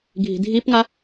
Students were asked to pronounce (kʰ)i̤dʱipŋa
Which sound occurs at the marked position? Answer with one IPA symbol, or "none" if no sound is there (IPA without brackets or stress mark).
ɡʱ